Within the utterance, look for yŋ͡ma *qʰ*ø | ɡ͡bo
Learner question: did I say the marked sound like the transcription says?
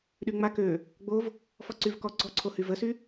no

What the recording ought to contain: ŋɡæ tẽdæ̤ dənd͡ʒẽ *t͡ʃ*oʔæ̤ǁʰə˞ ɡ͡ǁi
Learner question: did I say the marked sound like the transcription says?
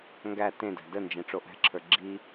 no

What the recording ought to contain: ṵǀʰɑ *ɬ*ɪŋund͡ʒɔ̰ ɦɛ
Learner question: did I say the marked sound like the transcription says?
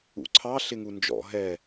yes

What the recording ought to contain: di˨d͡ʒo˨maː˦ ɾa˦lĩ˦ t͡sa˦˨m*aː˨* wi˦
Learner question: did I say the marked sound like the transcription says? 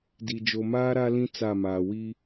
yes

